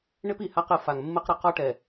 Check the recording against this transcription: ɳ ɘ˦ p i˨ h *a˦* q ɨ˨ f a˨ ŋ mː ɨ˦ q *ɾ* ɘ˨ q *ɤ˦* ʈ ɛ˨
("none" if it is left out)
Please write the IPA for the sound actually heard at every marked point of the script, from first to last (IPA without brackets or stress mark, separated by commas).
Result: a˦, ɾ, ɔ˦